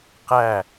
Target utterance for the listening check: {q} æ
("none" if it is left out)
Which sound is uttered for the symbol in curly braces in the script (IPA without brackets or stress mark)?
q